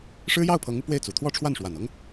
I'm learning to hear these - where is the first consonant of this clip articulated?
retroflex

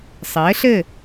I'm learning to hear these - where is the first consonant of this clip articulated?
tongue tip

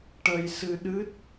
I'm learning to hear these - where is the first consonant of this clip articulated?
retroflex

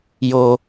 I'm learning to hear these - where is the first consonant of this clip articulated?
palate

